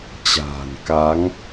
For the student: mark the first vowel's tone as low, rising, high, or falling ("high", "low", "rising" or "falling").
low